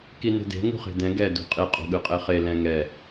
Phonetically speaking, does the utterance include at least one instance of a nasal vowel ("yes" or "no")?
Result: yes